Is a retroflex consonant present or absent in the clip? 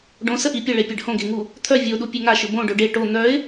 present